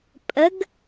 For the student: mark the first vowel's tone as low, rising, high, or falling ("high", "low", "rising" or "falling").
rising